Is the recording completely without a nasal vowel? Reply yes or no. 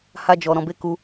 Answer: no